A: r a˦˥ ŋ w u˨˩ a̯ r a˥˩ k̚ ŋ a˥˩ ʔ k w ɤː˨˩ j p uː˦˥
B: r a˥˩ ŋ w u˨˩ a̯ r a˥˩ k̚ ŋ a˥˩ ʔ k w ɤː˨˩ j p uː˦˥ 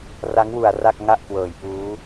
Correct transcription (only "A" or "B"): A